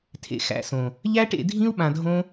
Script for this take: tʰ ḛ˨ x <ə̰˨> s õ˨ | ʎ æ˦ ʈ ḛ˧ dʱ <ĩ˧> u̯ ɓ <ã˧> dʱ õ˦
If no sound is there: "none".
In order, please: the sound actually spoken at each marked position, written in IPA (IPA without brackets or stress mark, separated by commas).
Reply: æ̰˨, ĩ˦, ã˧